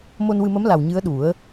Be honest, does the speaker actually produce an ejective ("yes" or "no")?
no